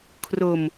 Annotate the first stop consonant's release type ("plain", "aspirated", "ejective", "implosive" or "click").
aspirated